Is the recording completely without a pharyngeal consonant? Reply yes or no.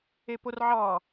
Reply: no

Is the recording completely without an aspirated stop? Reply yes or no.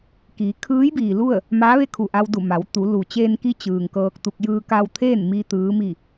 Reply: no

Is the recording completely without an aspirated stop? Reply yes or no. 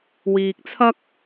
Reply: no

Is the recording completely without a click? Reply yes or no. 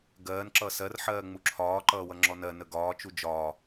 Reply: no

